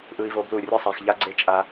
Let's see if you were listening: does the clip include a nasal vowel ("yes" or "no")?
no